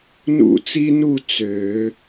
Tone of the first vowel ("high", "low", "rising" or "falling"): falling